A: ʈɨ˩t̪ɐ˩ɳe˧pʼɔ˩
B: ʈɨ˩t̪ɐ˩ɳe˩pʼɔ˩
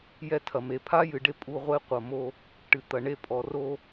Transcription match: A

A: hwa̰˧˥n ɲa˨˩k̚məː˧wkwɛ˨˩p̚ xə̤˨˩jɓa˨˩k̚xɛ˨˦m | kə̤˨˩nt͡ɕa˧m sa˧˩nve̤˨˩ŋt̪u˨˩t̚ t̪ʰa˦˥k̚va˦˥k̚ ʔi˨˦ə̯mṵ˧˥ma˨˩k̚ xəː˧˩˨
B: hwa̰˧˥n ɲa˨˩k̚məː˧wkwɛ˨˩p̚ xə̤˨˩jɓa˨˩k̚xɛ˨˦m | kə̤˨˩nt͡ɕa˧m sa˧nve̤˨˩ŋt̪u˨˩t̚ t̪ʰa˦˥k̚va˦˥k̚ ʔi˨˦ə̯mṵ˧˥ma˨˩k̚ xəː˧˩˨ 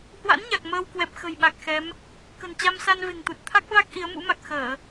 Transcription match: B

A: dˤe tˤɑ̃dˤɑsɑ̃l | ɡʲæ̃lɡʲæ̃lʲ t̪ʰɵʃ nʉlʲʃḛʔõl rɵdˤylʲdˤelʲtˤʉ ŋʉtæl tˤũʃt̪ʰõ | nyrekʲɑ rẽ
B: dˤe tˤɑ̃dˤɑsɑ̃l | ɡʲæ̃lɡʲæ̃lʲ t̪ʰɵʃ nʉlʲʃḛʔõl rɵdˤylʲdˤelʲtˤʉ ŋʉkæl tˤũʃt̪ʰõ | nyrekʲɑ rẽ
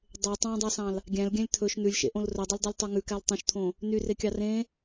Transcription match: B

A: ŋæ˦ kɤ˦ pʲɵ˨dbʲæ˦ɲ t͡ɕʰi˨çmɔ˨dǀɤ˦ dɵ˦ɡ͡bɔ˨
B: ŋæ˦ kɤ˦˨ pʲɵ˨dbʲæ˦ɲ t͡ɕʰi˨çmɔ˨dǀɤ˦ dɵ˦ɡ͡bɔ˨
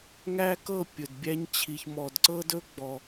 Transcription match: B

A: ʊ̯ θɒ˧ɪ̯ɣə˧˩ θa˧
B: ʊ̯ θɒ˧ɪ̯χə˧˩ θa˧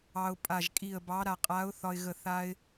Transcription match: A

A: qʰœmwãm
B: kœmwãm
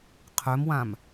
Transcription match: A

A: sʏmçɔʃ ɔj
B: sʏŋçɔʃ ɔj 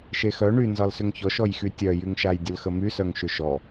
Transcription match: B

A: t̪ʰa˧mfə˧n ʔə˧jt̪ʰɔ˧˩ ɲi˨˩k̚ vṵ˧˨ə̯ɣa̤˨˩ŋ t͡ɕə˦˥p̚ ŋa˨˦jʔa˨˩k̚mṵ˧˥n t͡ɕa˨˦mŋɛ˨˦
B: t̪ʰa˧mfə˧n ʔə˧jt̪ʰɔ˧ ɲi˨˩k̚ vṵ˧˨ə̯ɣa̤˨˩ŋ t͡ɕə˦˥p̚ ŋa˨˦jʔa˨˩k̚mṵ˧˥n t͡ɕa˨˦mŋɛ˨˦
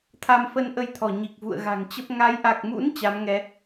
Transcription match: A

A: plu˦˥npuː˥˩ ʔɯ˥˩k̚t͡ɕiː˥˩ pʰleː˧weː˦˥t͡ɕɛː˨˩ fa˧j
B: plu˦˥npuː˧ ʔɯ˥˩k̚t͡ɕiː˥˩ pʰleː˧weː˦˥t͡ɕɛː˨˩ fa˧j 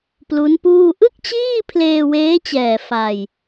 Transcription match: A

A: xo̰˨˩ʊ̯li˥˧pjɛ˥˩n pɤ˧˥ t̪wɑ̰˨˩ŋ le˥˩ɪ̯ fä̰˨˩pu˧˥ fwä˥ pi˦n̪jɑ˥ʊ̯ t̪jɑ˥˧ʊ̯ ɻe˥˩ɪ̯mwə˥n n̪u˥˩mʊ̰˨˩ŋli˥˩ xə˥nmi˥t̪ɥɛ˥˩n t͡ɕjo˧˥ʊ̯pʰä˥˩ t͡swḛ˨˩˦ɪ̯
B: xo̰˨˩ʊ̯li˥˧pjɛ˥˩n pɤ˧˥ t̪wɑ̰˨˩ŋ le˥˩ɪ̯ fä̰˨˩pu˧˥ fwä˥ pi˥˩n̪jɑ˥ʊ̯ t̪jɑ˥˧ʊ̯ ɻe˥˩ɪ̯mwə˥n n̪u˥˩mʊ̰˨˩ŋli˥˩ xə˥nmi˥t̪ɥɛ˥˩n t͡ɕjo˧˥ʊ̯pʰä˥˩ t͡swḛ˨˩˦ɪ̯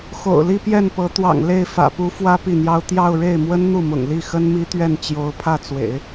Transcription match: B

